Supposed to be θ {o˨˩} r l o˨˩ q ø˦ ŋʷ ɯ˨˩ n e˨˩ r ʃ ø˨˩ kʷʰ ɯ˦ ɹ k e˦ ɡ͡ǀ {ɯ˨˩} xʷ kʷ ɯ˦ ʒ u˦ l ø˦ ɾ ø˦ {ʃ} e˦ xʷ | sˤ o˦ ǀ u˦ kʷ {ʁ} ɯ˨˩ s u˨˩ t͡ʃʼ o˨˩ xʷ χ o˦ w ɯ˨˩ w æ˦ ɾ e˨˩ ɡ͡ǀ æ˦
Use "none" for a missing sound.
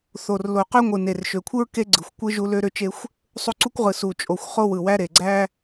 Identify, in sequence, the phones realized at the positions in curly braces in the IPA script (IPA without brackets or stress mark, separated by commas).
o˨˩, ɯ˨˩, t͡ʃ, ʁ